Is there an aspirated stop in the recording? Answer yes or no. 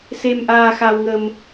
no